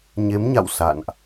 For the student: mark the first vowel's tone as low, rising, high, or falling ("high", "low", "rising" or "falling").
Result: rising